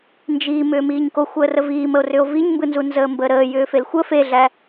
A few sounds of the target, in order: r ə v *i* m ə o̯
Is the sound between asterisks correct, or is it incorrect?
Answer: incorrect